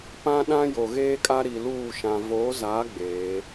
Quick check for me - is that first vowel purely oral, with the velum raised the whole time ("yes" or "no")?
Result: no